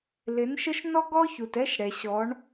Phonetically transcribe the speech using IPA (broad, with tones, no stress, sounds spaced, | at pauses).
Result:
l ɪ˨˦ n ʃ ə˦ ʃ n ɔ˦ ɡ ɔ˦ ç u˨ t ɛ˦ ʃ ɽ ɛ˨ ɕ ɔ˨˦ ɳ